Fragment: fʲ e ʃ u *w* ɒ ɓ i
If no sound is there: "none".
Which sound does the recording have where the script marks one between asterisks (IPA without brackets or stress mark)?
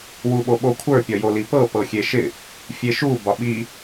b